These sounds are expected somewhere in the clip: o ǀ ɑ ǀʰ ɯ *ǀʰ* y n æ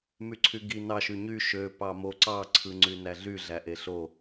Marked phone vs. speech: incorrect: ŋ͡ǀ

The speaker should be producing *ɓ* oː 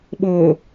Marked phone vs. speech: correct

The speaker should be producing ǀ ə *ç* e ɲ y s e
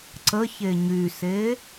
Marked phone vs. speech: correct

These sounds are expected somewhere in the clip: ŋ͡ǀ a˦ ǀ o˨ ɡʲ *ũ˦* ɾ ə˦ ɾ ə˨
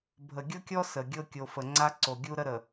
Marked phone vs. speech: incorrect: u˦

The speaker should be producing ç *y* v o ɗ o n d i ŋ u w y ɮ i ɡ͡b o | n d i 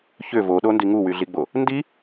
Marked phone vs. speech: incorrect: ʏ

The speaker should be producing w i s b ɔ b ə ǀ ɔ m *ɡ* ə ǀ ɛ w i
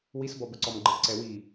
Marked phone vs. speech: incorrect: ɡ͡ǃ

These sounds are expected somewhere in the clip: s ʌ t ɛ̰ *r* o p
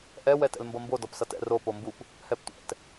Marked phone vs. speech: correct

